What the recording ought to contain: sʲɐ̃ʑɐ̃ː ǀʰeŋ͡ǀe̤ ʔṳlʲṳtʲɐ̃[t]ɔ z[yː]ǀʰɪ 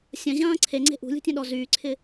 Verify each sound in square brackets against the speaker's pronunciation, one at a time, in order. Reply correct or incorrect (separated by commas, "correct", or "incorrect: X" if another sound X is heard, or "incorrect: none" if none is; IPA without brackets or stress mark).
incorrect: ɗ, correct